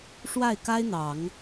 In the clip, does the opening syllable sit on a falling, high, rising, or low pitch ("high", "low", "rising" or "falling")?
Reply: falling